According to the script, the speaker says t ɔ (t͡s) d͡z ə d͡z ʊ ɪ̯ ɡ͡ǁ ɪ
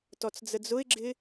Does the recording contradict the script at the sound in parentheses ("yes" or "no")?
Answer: no